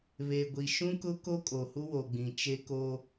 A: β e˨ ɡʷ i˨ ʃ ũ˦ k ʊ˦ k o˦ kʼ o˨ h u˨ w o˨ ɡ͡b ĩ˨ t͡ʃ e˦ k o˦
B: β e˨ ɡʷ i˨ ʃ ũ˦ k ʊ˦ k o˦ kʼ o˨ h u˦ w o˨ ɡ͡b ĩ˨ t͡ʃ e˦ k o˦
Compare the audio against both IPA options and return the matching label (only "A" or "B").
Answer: B